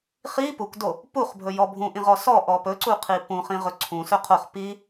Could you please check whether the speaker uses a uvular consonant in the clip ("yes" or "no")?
yes